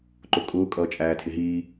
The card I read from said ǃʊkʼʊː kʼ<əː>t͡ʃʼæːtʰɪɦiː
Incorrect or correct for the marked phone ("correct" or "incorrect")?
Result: incorrect